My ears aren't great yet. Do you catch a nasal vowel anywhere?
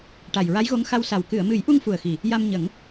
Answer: no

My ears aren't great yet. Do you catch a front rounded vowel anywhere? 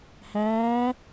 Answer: no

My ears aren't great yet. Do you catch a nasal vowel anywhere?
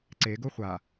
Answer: no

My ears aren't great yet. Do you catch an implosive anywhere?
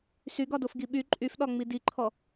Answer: yes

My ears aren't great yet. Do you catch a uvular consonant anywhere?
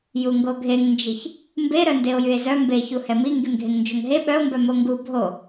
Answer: no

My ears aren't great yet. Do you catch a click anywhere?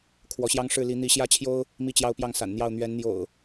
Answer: no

